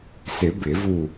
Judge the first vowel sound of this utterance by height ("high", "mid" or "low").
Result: high